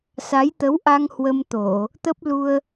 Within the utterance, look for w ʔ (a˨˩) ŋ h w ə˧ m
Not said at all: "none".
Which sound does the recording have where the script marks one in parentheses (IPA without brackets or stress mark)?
a˧